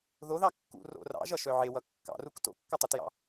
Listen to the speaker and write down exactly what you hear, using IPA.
ð o ð ɑ kː ṵ r o̰ r ɑ̰ ʒ ʌ ʃ œ ʕ e w ʌ kː ɑ̰ r u k t o̰ kː ɒ tˤ u t j ɑ̰

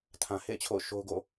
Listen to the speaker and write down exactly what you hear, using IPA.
tʰ ã˨ h ḛ˦˨ ɪ̯ t͡ɕʰ o̰˦˨ ʊ̯ ʃ o˦ ʊ̯ ɡ o̰˦˨

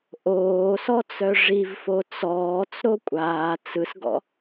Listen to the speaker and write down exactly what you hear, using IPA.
ʔ oː s ɔ t͡s œ ʐ i v f o t͡s ɔː t͡s ɾ o kʷʼ aː t͡s ɯ s ɡ ɔ̰

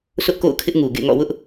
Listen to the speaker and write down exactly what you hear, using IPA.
s ʊ˦ ʔ k o̰˦˨ ʊ̯ kʰ ɪ˦ ʔ ŋ u˨ ɡ ḛ˦˨ ŋ ɔ̰˦˨ w ʊ˦ ʔ

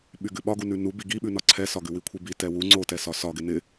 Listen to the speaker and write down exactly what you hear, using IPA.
ɓ y ɡ ʉ ɓ ɒ ɡ u n ʉ n u b i ɡ i ɓ ʉ n ɒ ǀʰ ɛ s ɒ ɡ ʉ w i kʷʰ i b i t ɛ w u ŋ͡ǀ o t ɛ s ɒ s ɒ ɡ ɪ n ɪ

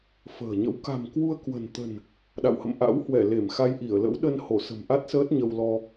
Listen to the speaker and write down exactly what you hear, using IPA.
f ə̤ː˨˩ ɲ ə̰˧˥ w k a̤˨˩ m k w u˧ ə̯ k w ə̤˨˩ n t̪ ə̤˨˩ n | ɗ a̰˧˨ w h ə̰˧˨ m ʔ a̰˧˥ w h w ɛ˧˩ l e˧˩ m x a˧ j ʔ i˧˩ ə̯ l ə̰˧˥ w ɗ ə˧ n h o˧˩ s ə̤˨˩ m ʔ a˦˥ t̚ s əː˦˥ t̚ ɲ ə˧ w l ɔ˧

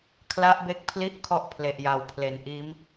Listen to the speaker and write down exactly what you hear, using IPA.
kʰ l a˦˥ ʔ b e˦˥ k̚ pʰ l i˥˩ ʔ kʰ ɔ˥˩ ʔ pʰ l e˨˩ ʔ j a˩˦ w pʰ l e˨˩ n ʔ iː˦˥ m

